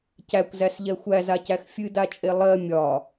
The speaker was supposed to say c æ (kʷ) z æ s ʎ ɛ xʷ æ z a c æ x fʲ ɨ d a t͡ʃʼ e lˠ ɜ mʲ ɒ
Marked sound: correct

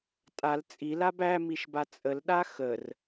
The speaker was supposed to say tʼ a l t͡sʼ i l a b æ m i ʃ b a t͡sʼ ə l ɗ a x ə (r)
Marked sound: correct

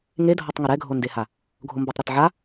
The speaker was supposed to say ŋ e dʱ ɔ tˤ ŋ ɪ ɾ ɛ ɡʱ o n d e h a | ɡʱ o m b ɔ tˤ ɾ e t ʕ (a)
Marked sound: correct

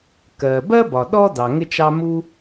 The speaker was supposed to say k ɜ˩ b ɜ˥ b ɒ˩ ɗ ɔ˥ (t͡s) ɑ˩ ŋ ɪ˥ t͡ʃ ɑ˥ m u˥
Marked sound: incorrect: d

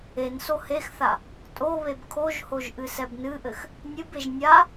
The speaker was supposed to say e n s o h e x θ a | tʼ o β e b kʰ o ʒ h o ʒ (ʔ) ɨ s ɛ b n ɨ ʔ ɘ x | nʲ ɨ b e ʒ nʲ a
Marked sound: correct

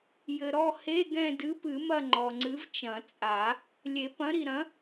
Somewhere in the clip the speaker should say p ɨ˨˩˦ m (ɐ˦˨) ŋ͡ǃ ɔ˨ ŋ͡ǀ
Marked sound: correct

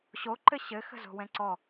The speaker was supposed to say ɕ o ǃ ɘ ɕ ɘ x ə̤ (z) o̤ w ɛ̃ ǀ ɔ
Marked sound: correct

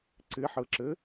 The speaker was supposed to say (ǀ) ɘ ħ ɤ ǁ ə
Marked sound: correct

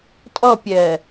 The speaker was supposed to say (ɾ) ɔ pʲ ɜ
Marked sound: incorrect: tʼ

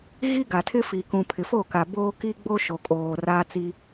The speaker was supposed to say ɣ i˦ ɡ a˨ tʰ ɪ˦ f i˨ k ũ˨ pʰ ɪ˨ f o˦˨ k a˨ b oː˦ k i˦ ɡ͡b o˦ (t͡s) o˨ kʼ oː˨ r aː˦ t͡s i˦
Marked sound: incorrect: ʃ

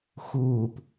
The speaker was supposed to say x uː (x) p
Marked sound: incorrect: none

